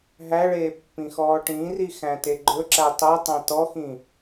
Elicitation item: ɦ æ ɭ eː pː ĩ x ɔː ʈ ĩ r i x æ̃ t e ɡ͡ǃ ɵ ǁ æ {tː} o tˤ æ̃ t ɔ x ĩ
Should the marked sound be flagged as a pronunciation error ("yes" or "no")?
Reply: yes